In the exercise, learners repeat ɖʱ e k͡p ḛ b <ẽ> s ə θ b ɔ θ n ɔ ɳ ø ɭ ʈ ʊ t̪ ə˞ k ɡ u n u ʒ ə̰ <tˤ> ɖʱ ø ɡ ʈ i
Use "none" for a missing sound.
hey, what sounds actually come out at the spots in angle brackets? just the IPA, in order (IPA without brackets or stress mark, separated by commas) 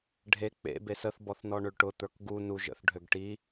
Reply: e, θ